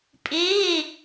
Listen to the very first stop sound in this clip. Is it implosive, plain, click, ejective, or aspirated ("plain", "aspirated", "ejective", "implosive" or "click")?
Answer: ejective